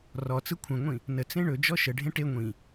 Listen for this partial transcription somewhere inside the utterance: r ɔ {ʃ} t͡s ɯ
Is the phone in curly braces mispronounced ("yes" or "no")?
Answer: yes